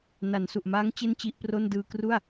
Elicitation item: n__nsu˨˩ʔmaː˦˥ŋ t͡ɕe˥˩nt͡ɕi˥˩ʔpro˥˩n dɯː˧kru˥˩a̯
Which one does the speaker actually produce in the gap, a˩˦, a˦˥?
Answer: a˩˦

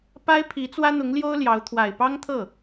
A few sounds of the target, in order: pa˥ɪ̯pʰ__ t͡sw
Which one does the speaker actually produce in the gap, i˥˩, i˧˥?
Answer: i˧˥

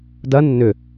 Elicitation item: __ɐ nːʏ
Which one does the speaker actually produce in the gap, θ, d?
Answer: d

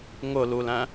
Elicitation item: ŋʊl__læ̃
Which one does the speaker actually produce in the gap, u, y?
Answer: u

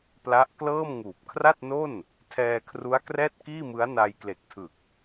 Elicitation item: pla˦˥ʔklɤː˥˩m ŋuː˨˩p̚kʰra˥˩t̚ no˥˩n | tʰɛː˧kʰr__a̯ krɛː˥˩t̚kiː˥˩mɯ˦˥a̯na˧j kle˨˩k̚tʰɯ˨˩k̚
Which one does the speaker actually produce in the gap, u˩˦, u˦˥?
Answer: u˦˥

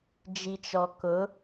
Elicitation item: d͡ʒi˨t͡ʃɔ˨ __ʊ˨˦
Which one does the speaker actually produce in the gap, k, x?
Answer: k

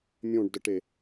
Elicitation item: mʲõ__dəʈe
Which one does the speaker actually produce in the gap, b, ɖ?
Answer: ɖ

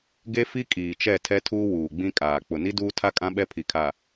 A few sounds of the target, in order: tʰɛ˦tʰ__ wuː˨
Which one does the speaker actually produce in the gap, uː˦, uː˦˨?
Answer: uː˦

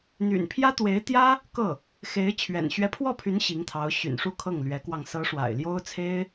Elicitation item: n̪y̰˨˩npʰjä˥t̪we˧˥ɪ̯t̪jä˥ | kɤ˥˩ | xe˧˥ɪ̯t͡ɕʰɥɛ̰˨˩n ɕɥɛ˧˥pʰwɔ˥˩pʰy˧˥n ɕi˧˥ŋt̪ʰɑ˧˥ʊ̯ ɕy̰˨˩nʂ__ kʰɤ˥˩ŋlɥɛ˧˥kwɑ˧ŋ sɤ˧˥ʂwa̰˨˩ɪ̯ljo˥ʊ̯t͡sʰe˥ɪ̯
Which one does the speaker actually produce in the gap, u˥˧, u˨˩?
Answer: u˥˧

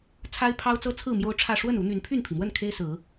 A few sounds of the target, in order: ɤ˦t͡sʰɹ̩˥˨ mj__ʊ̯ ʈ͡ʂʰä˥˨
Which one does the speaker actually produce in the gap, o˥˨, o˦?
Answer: o˦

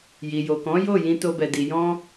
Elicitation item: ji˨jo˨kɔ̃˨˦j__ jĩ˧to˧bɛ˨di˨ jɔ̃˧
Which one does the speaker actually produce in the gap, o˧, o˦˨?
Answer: o˦˨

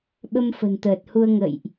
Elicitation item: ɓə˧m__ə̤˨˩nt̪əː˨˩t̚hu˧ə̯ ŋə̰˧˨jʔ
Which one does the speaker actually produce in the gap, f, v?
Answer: f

